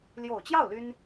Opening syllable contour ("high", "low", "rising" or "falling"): low